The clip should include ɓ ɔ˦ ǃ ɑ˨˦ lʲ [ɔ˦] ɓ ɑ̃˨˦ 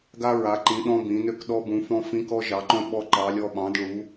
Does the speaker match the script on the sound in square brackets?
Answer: yes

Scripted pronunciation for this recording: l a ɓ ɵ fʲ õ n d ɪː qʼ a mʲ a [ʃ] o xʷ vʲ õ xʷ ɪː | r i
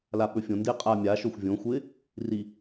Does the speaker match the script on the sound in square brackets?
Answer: yes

